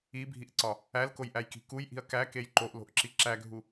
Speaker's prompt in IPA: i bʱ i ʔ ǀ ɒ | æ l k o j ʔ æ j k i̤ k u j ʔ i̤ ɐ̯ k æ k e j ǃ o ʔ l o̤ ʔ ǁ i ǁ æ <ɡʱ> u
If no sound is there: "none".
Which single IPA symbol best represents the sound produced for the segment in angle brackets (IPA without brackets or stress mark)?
ɡʱ